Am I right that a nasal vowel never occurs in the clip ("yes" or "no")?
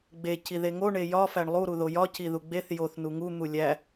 yes